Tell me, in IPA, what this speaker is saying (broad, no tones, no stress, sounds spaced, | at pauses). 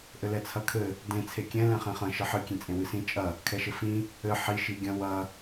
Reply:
ʔ ɘ l ɛ t͡sʰ ɐ kʰ ɘ | d ẽ t͡sʰ e kʲ ɛ̃ l ɛ̃ χ ẽ χ ɐ̃ ʃ ɘ ħ ɨ kʲ ẽ t͡sʼ ẽ w ɨ s ĩ t͡ʃʼ ɐ | kʰ ɛ ʃ ɘ f ĩ | ɘ ħ i ʃ i ɡʲ ɐ̃ w ɐ